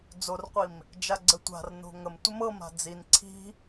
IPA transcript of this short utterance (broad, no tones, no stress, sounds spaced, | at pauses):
d͡z o r qʷ i m | d͡ʒ a ɡ͡ǀ ə tʷ a̤ r n o̤ ŋ ə m tʷ ə m ɤ m a̤ d͡z i n ǀʰ i̤